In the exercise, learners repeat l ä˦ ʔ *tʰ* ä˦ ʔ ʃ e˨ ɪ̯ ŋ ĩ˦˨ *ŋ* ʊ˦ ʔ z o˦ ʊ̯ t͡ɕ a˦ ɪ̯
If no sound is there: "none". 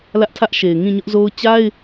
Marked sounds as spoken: tʰ, ɲ

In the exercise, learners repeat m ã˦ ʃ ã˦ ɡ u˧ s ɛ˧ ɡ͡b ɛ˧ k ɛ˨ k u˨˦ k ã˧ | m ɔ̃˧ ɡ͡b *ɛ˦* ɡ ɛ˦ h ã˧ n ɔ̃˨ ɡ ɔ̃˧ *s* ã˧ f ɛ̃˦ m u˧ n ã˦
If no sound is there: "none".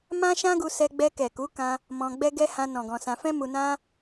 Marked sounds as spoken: ɛ˦, s

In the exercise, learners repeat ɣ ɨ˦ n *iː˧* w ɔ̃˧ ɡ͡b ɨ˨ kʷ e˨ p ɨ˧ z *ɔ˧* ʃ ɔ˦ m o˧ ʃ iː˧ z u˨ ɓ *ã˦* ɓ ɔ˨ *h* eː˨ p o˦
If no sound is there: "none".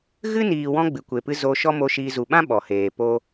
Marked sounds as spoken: iː˨, o˧, ã˦, h

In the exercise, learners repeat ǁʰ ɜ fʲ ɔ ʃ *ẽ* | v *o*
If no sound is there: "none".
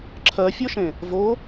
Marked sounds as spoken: ẽ, o

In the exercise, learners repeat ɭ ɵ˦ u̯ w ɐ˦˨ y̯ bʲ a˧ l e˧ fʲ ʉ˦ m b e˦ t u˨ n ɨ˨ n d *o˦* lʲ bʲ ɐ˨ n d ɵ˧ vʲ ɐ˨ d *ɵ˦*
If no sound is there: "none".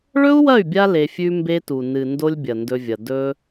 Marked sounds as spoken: o˦, ɵ˧

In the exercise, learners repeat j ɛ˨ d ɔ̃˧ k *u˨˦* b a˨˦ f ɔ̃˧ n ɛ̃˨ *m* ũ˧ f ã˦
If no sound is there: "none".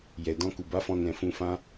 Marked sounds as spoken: u˨, f

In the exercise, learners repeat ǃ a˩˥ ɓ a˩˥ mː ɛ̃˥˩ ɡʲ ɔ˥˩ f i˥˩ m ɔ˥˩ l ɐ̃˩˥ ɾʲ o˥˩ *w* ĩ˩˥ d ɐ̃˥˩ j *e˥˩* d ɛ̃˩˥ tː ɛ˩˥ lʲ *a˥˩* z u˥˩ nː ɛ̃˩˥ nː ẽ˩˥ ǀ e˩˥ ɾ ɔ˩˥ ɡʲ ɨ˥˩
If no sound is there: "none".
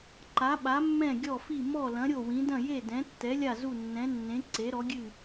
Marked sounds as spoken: w, e˥˩, a˥˩

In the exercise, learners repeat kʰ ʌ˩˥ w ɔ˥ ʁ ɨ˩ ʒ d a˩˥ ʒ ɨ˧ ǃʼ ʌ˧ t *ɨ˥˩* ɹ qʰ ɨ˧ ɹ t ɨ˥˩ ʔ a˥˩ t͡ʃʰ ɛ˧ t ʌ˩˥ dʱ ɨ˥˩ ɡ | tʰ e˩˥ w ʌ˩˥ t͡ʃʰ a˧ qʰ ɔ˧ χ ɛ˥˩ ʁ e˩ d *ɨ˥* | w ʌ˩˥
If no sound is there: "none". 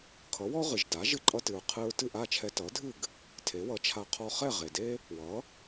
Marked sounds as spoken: ɨ˩, e˥

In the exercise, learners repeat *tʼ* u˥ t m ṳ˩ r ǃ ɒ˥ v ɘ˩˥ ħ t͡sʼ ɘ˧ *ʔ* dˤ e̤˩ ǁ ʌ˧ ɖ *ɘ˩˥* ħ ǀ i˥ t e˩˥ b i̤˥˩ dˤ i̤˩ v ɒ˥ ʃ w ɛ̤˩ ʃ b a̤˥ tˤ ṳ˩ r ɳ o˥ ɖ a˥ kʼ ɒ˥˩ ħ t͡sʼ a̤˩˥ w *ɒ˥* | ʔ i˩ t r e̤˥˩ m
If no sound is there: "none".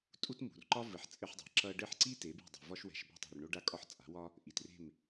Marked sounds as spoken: tʼ, ħ, ɘ˥˩, ɒ˥

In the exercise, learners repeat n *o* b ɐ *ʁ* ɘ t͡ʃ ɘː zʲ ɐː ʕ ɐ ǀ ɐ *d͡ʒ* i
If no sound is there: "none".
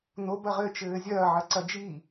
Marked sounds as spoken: o, ʁ, d͡ʒ

